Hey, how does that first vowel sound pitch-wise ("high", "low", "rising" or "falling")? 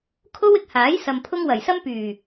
high